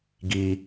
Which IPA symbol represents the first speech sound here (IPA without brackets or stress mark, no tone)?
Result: ɡ